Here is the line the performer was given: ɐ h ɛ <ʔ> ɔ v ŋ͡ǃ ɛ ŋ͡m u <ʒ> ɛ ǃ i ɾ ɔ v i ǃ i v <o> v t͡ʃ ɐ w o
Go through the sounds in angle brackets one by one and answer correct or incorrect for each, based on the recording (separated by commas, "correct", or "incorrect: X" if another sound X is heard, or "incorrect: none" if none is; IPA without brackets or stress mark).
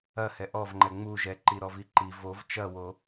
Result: correct, correct, correct